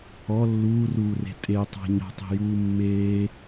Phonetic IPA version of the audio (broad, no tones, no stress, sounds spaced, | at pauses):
ɔ lː uː r uː r e̤ tʼ e tˤ a̤ ɲ ɔ̤ tˤ e̤ j uː mː eː